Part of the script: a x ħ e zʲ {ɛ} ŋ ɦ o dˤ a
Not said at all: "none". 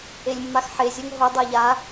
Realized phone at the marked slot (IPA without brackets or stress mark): ɜ